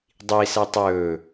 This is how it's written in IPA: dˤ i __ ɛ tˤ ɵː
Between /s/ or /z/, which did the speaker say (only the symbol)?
s